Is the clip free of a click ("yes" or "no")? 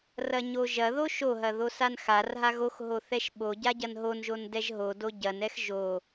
yes